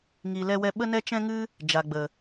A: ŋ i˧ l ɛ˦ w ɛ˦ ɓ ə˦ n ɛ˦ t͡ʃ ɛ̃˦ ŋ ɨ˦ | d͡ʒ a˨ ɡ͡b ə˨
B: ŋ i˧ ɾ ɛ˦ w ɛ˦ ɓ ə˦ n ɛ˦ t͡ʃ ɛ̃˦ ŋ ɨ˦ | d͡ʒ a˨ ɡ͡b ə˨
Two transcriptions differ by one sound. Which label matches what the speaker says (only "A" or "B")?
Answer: A